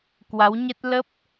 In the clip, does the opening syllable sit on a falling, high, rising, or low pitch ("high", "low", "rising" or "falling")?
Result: rising